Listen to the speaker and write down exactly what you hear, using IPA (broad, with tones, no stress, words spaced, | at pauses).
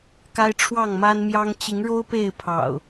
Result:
ka˦ɪ̯ʈ͡ʂʰwɑ˥˨ŋma˦nmjɑ˦ŋ t͡ɕi˨˦ŋɻo˦ʊ̯ pe˥˨ɪ̯pʰɑ̰˨˩ʊ̯